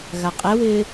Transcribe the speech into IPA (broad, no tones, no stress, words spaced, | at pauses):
ɣaqʼɛwɪː